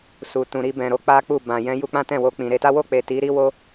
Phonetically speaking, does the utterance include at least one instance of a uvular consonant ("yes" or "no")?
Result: no